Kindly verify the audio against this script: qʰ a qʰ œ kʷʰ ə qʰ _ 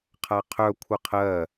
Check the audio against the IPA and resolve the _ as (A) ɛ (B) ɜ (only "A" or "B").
B